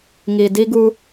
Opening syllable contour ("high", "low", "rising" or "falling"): low